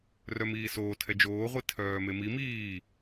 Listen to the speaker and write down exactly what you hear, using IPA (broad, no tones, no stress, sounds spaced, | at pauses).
r œ m iː s oː tʰ ɛ d͡ʒ oː ʁʷ i tʰ œː m e m i m iː